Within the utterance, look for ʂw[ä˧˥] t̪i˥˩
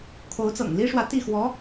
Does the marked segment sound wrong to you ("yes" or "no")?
no